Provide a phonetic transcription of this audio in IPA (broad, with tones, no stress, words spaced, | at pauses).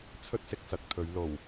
t͡sʰɵ˥t̚sɪ˨k̚sɐ˨k̚t̪ʰɵ˨˧ɥ lo˨˩w